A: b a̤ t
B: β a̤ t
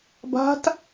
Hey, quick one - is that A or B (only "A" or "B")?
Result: A